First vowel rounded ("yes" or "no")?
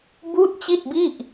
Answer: yes